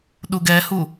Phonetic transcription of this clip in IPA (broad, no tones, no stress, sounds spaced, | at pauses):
ɗ u ɡ ɛ h u